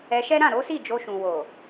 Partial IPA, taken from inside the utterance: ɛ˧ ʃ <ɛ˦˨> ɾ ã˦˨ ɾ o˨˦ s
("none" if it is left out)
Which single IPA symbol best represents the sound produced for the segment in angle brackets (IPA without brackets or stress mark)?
ɛ˦